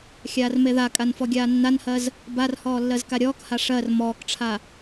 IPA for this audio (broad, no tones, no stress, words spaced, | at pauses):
xʲaːrmeðakʼan fɔɡʲaːnːanhɜz | barhɔː lːɜzkaɾʲɔːkha ʂɜr mɔːkʈ͡ʂʰa